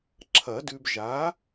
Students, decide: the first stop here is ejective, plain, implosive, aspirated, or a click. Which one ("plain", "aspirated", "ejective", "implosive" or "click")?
click